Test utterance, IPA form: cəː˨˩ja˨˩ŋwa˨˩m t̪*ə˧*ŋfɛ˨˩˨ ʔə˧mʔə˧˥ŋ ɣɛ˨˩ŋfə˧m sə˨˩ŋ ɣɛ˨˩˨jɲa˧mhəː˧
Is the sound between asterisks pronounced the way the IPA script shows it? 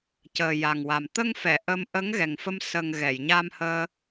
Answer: yes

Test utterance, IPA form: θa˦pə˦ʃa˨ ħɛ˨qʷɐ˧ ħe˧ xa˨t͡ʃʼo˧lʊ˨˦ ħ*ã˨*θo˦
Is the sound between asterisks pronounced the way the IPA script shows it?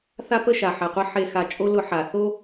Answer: no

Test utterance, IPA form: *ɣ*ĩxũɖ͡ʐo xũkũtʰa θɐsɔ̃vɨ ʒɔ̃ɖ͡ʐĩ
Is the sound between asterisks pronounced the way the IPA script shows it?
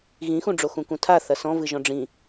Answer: yes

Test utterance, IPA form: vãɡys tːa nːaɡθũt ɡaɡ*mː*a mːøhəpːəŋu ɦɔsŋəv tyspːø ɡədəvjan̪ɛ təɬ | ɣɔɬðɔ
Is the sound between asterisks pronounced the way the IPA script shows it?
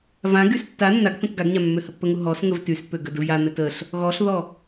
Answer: no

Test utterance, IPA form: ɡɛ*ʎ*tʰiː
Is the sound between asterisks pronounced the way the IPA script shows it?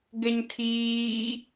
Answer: no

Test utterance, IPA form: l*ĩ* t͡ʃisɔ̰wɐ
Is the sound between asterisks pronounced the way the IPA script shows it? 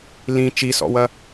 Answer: yes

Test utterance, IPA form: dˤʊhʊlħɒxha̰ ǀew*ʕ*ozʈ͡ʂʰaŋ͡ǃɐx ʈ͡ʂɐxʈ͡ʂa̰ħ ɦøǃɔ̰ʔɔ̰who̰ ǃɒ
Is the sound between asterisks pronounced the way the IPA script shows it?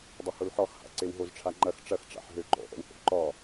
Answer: no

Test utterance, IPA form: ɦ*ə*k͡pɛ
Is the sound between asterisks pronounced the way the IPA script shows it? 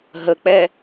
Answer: yes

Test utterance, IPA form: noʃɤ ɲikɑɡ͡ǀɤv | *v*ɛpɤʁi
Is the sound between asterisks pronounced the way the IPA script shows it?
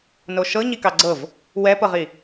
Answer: no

